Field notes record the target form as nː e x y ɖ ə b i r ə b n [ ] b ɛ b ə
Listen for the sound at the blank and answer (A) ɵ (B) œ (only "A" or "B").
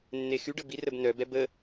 B